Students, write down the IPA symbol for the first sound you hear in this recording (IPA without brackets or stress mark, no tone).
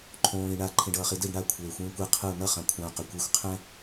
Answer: ǃʰ